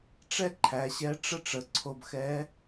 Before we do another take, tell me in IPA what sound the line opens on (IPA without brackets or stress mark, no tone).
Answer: ʈ͡ʂ